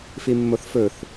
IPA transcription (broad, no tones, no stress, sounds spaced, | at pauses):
f i mː o θ f ɵ θ